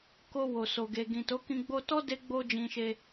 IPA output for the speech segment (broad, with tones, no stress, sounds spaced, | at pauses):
k o˧ w o˨ s o˨ ɡ e˨ ɡ ĩ˨ t o˨˦ k ĩ˧ ɡ͡b o˧ t ɔ˦ d e˦ ɡ͡b o˧ d͡ʒ ĩ˨ ʃ e˧